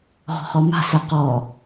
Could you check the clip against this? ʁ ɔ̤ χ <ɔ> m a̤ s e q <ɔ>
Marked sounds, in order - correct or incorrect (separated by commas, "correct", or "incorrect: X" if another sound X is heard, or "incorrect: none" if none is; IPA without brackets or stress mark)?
correct, correct